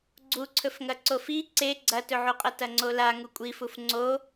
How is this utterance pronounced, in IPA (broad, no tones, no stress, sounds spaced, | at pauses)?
ɡ͡ǀ u ǀʰ ɵ f ŋ ɐ ǀ o f i ǀ e ɡ͡ǀ ɐ t ɵ ʕ u qʼ ɐ t ɐ ŋ͡ǀ o l a ŋ u kʷʼ i f u f ŋ͡ǀ o